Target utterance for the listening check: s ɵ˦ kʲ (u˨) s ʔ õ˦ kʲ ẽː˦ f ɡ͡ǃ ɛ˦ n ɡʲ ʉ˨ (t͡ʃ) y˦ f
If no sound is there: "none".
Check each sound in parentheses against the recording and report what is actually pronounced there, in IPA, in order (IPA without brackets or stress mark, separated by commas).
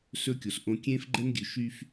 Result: o˨, ʃ